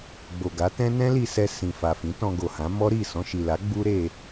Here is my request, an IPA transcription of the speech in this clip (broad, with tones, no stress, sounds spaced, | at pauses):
ɡ͡b o˨ ɡ a˨˦ t ɛ̃˦ n ɛ̃˦ l i˧ s ɛ˧ s ĩ˨ f a˨ f ĩ˨˦ t ɔ̃˧ ɡ o˨ h ã˨˦ m ɔ˦ ɾ i˦˨ s ɔ̃˧ ʃ i˨ l a˨˦ ɡ͡b u˦ ɾ e˧